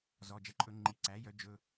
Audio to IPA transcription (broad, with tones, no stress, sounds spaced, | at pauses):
z ɔ˩˧˩ d͡ʒ ɛ˩˥ ǃʼ ɵ˧˩˧ ŋ͡ǃ i˩˧˩ ǀ æ˩˥ j œ˩˥ d͡ʒ ɵ˩˧˩